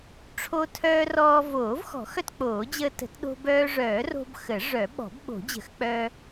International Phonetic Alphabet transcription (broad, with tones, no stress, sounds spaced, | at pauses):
ʈ͡ʂʰ o˧ tʰ œː˧ r ɔː˧ v oː˨˩˦ v x ɔ̤˨˩˦ x œ˧ t k͡p oː˨˩˦ d͡ʑ əː˧ t ə̤˨˩˦ t ɗ o̤˧ b œː˧ ʐ œː˨˩˦ r o̤˧ b x ə˨˩˦ ʐ œ˨˩˦ ɓ ɔ̤˨˩˦ b ɓ o̤˨˩˦ d͡ʑ ə̤˨˩˦ x k͡p œ˧